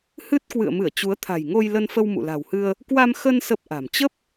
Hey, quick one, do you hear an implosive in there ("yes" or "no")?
no